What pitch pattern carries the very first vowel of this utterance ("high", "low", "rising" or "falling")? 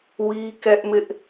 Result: high